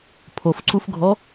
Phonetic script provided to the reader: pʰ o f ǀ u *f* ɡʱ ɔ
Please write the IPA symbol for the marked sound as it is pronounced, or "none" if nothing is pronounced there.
f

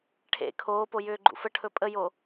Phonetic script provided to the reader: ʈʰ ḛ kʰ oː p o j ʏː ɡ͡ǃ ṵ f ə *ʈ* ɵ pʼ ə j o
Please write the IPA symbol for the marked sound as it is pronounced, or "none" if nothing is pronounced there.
ʈʰ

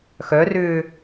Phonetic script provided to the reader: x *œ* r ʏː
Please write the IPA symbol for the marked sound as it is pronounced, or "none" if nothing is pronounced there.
œ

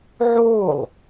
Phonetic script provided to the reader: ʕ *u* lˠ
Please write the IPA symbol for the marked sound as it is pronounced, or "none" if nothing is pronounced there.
o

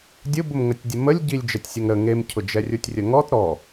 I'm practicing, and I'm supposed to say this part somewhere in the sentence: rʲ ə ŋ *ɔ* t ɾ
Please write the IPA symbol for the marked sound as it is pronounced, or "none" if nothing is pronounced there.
ɔ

